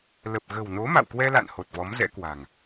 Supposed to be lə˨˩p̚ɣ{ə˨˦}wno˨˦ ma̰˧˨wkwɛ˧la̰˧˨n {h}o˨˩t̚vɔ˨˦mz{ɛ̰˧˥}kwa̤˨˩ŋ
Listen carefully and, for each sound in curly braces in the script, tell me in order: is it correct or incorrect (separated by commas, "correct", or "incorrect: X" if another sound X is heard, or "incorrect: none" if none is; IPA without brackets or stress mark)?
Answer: incorrect: ə̤˨˩, correct, correct